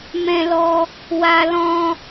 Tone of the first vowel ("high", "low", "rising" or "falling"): high